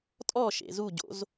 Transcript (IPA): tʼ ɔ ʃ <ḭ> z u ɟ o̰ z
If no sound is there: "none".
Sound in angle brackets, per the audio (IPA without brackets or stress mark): ḛ